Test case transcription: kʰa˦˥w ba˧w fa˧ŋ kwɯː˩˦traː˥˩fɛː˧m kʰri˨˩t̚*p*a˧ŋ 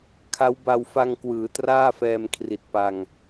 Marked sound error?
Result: no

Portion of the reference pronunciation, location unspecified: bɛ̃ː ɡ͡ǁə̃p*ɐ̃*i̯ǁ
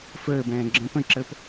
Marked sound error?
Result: yes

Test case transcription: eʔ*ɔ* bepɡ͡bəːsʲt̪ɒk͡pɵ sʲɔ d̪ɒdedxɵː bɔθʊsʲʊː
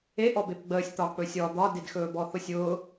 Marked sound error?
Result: no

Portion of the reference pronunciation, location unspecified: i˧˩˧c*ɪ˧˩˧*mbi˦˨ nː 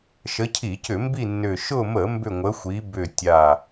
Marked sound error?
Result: yes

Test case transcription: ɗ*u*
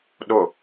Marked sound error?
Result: yes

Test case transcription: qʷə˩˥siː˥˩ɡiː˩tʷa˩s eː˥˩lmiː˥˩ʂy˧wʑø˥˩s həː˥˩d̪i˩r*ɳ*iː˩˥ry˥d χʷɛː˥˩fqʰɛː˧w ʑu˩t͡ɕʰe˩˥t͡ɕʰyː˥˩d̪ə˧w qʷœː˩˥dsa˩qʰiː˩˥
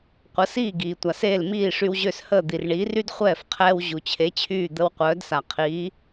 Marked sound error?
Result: no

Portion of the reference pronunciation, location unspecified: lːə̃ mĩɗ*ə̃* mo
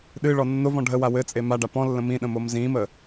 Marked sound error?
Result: no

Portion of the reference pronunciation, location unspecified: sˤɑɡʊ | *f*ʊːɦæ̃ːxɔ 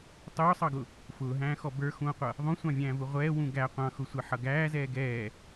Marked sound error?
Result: no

